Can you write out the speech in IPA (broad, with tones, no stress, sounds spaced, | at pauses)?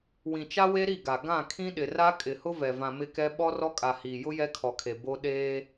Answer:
w ĩ˨ t͡ʃ a˦ w e˦ ɾ i˦˨ ɡ a˨ ɡ ã˦˨ kʰ ĩ˦ ɗ ɪ˨ r a˦ kʼ ɪ˨ h ʊ˦ v ɛ˨ v ã˨ m ɪ˦ k ɛ˦ ɓ ɔ˦ r ɔ˦ kʼ a˨ h iː˨ j ʊ˦ j ɛ˦ kʰ ɔ˨ kʰ e˨ b o˦ ɗ eː˦